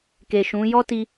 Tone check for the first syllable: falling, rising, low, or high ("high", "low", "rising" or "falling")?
low